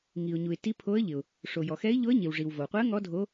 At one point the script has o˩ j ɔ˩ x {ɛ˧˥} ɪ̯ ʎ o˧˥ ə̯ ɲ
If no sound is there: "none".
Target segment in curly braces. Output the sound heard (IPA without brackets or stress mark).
ɛ˧˥